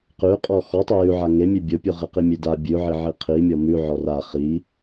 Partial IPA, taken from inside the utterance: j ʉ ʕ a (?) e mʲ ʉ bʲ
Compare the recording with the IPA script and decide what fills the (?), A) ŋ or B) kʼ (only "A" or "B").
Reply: A